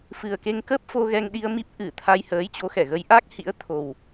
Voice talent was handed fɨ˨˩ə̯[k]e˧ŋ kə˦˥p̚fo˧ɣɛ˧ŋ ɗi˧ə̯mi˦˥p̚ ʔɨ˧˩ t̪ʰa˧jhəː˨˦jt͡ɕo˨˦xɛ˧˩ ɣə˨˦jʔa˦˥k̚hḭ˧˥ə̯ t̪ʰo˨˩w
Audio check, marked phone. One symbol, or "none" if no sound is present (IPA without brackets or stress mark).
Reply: k